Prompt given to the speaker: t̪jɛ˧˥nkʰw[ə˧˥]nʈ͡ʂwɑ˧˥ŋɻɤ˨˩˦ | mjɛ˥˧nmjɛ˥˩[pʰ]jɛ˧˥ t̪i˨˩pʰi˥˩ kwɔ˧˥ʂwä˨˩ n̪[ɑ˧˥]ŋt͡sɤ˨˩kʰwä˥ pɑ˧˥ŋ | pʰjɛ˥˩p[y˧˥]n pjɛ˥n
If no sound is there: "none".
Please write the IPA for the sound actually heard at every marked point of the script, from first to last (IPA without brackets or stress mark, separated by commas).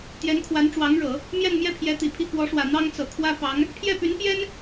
a˧˥, pʰ, ɑ˥, y˧˥